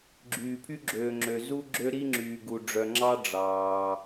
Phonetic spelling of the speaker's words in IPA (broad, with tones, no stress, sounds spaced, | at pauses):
ɡ͡ǁ yː˨ pʰ y˦ ɡ͡ǁ øː˨ ŋ͡ǁ ø˨ z u˦ ɡ͡ǁ ø˦ ɾ i˦ ŋ͡ǁ yː˨ ɡ u˨ ɖ͡ʐ œ˨ ŋ͡ǁ ɑ˦ ɖ͡ʐ ɑː˨